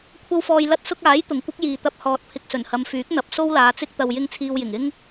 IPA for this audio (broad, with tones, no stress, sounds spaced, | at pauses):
kʷʰ ɐ˥ w f ɔː˧ j l ɐ˧ t̚ s ʊ˧ k̚ aː˨˥ j t̪ ʊ˨˩ ŋ kʷ ɪ˥ k̚ j iː˨ t̪ ɐ˧ p̚ h ɔː˨ t̚ pʰ ɪ˨ k̚ s ɵ˨˩ n h ɐ˨˧ m f yː˨˥ k̚ n̪ ɐ˨˥ p̚ s o˥ w l aː˨˧ t͡s ɪ˥ k̚ t̪ ɐ˧ w j ɪ˥ ŋ t͡sʰ iː˧ w j ɪ˨˩ ŋ ɪ˥ ŋ